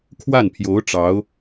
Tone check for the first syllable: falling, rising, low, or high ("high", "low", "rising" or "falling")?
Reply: falling